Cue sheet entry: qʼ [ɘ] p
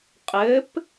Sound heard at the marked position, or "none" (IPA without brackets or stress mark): ɘ